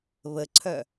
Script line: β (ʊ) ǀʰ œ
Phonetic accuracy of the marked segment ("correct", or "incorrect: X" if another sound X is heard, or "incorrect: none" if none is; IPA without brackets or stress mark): incorrect: ə